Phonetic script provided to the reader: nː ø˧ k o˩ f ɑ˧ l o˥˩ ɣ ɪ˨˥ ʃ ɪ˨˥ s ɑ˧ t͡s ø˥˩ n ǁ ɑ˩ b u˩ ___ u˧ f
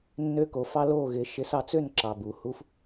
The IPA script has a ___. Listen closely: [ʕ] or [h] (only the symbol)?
h